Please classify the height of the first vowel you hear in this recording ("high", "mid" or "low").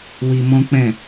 high